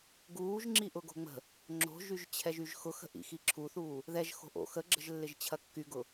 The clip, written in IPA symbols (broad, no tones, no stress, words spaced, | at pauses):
ɡuːʒŋ͡ǁi ʔʊɡo̤ŋ͡mə̤ | ŋ͡ǁo̤ʒyʒt͡ɕʰɛʒ yʒxʊxə̤ʔḭ xiǁʰuθuː | ðɛʒ xo̤ʔo̰ xəɡ͡ǁə̤ʒ lːɪʒt͡ɕʰɐkːyɡʊ